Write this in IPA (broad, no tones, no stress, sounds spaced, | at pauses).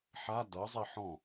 ħ a d ɤ zˤ i ħ ɔ̃